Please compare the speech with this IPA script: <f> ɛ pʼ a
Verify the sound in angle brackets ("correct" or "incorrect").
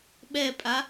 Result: incorrect